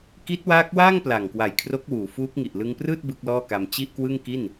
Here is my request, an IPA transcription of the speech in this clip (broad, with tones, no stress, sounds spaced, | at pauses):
k i˦˥ t̚ w aː˦˥ k̚ w aː˥˩ ŋ p l a˨˩ ŋ k w a˨˩ j kʰ r o˦˥ k̚ w uː˩˦ f uː˦˥ k̚ ŋ i˨˩ ʔ l ɯ˧ ŋ p r ɯː˥˩ t̚ b ɯ˦˥ k̚ l ɔː˥˩ k a˧ m t͡ɕ i˥˩ ʔ k w ɯ˥˩ ŋ k i˥˩ n